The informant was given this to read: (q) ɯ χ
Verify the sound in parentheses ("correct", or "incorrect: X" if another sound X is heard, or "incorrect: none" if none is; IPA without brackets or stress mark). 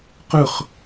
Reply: correct